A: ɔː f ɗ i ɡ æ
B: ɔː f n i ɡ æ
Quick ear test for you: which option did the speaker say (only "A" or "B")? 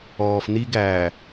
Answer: B